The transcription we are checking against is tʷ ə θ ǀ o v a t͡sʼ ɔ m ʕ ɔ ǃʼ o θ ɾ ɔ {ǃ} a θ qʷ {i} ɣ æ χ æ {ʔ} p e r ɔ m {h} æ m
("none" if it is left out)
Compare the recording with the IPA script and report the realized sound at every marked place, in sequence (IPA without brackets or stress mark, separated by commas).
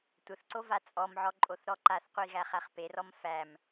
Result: ǃ, i, χ, f